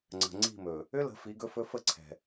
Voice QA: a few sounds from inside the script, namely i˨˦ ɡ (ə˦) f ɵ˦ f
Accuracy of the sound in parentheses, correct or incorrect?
incorrect